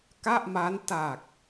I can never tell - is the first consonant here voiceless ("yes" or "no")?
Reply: yes